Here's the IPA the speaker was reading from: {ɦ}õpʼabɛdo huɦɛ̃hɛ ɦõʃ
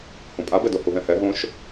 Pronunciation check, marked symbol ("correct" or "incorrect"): incorrect